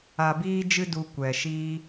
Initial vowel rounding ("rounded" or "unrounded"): unrounded